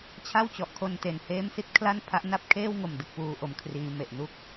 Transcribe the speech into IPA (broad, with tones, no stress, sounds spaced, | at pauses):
t͡ɕʰ a˥˩ w t͡ɕ ɔ˨˩ ʔ kʰ o˧ n t e˨˩ n h eː˦˥ m s i˦˥ t̚ kʰ l a˥˩ n pʰ a˦˥ ʔ n a˥˩ p̚ kʰ eː˥˩ w ŋ o˨˩ m d ɯ˦˥ k̚ p uː˦˥ ʔ o˧ m kʰ r iː˦˥ m e˨˩ ʔ n u˥˩ k̚